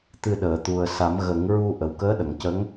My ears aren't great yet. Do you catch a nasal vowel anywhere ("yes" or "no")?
no